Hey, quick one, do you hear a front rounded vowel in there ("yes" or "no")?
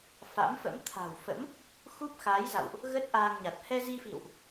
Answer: no